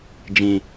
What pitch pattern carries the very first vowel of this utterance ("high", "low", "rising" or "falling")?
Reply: low